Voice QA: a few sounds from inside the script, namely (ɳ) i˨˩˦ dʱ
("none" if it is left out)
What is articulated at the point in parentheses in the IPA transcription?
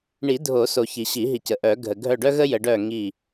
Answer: ɳ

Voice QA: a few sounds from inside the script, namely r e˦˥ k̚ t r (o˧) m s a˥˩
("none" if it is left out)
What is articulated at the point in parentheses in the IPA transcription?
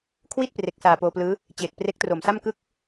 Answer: o˨˩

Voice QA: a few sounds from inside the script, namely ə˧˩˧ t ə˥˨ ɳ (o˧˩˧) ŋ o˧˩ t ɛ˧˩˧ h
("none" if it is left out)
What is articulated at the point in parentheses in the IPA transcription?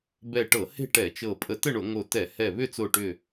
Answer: o˧˩˧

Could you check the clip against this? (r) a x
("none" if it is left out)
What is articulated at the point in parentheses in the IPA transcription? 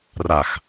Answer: r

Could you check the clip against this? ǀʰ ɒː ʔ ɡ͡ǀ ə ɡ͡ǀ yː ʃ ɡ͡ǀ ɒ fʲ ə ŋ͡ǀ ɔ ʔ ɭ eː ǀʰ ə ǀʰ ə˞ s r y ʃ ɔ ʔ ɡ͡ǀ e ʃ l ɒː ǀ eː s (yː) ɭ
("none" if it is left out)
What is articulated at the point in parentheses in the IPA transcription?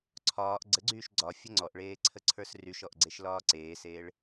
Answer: eː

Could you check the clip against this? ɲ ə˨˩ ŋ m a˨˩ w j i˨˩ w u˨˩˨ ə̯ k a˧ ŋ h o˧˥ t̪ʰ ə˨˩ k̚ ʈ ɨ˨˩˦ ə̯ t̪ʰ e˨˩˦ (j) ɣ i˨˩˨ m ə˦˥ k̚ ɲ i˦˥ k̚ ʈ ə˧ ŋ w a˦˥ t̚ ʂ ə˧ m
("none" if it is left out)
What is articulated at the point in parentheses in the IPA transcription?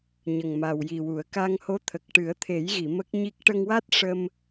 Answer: j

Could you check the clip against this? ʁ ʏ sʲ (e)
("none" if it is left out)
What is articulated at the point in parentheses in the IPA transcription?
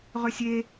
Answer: e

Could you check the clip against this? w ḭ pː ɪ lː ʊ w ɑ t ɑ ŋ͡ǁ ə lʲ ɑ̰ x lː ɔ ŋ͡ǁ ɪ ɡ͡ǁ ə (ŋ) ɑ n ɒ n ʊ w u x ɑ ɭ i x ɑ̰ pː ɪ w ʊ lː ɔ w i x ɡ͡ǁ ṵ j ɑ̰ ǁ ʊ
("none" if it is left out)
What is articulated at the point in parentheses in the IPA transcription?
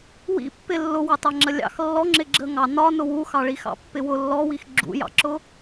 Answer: ŋ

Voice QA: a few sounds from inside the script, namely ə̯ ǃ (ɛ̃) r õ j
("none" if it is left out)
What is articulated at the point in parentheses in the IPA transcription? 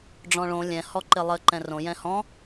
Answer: ɛ̃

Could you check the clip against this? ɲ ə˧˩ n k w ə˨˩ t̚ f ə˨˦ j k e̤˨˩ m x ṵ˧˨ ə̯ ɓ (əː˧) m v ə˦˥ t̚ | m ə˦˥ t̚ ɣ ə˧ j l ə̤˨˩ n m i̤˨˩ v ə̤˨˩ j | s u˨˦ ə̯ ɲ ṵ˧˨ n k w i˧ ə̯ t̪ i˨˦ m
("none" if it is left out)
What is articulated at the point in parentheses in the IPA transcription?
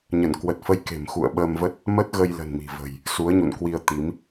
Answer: əː˧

